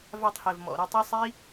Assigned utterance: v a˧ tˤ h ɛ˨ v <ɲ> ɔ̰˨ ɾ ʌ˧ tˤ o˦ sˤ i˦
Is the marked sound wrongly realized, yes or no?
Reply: yes